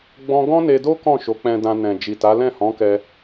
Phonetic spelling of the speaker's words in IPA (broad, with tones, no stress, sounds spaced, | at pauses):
ɡ͡b ɔ̃˦ ɡ ɔ̃˦ n e˧ d o˦ k ɔ̃˦˨ ʃ o˨˦ k͡p ɛ̃˧ d ã˧ n ɛ̃˨ d͡ʒ i˨ t a˨˦ l ɛ̃˦˨ h ɔ̃˨˦ k ɛ˧